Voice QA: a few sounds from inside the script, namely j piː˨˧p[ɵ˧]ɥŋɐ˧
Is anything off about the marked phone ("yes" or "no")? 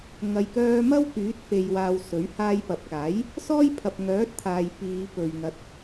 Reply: yes